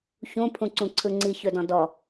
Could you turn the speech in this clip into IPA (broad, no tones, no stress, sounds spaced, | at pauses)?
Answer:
ç ũ pʰ ũ ǀ ũ ǀʰ ɯ ŋ͡ǀ i ç ɵ d ɔ̃ d ɔ